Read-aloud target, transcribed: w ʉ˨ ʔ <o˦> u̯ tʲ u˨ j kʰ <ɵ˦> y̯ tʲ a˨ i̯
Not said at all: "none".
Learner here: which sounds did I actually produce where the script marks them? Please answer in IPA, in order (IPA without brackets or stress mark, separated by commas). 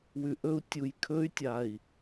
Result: ɵ˦, ɵ˦